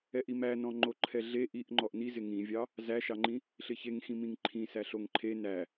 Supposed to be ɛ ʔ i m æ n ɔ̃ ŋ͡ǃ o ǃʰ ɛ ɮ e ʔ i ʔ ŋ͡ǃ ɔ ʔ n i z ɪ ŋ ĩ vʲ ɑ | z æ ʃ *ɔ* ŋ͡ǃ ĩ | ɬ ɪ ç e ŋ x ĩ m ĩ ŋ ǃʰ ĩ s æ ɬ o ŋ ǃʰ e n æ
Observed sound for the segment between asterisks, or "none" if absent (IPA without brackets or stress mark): ɑ